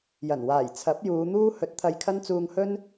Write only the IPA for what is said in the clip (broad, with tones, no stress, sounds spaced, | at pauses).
j ɐ˨˩ n w aː˨˩ j t͡sʰ ɐ˨˥ p̚ j uː˨˧ n̪ uː˥ h ɵ˨˥ t̚ t̪ʰ ɐ˧ j kʰ ɐ˥ n t͡s uː˧ ŋ h ɵ˥ n